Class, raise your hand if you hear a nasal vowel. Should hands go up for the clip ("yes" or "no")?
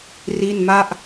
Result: no